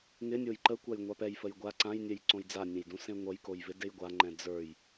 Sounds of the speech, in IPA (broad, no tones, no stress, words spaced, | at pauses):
ŋɪnʲoj ǃəkʷaj ŋʷapɛjfəj ɡʷa ǀãjnʲɛj ǀõjd͡zanʲɛ̃j dũsẽŋʷʌjkoj vɪdejɡʷaŋ͡ǃɛ̃ d͡zə˞j